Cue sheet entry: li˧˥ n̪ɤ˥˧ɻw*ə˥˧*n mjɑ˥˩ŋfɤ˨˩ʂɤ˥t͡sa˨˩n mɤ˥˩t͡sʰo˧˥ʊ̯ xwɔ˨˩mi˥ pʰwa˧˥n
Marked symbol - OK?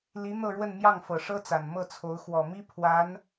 yes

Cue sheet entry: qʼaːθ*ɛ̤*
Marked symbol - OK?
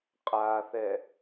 no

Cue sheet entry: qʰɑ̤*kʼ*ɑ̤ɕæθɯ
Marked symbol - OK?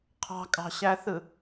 yes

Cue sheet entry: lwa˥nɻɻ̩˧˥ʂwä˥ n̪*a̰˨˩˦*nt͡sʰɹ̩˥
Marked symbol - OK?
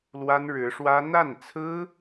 no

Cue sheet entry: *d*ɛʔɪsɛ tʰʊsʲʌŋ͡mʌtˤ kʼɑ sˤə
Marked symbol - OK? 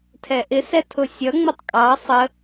no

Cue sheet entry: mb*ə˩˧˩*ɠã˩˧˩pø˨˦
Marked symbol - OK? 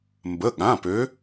yes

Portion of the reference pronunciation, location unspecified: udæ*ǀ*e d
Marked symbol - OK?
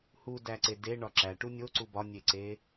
yes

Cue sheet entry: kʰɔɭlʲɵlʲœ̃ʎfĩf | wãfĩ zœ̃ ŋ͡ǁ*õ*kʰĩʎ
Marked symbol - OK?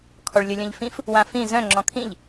no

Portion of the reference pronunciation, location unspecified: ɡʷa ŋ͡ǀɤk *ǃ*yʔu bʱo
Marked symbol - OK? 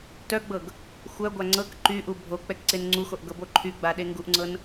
yes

